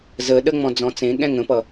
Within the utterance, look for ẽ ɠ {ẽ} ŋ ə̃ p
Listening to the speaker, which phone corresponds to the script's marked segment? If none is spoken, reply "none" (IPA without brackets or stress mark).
ɛ̃